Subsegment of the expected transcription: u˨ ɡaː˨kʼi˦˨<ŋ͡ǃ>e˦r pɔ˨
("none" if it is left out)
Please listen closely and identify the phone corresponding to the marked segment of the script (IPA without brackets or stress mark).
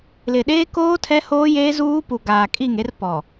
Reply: ŋ